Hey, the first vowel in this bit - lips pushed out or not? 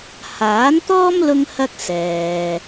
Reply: no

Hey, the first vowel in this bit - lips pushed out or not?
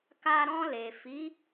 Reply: no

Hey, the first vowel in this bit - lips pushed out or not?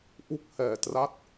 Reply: yes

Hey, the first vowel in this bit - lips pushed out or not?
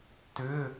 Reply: yes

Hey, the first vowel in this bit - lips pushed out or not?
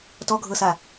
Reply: yes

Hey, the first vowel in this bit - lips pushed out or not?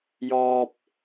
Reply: yes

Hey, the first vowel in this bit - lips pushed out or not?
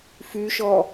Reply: yes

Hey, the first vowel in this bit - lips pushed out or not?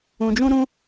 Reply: yes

